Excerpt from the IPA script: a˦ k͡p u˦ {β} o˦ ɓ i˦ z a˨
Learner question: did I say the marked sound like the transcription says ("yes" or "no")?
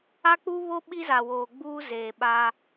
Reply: yes